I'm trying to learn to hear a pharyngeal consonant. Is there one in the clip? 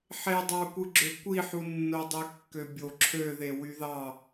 yes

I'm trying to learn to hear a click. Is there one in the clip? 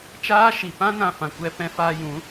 no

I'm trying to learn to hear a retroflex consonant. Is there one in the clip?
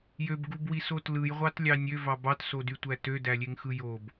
no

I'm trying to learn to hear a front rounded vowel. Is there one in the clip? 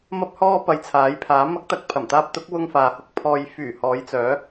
yes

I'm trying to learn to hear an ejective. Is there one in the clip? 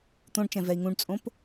yes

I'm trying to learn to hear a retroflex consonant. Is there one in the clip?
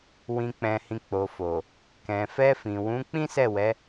no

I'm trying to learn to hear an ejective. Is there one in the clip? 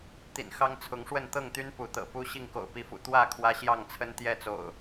no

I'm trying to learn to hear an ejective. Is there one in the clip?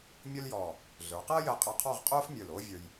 yes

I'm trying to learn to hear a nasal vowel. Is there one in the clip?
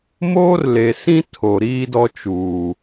yes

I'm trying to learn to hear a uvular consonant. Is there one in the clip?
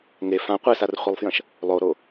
yes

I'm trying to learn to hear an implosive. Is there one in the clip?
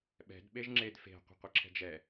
yes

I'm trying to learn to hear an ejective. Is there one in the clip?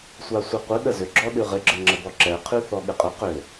yes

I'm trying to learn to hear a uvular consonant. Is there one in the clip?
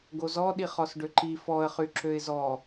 yes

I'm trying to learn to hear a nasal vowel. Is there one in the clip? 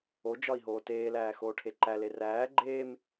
no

